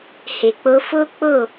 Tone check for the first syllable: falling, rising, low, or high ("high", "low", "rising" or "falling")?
low